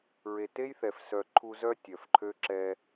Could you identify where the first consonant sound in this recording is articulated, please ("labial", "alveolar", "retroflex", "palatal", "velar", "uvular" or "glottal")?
alveolar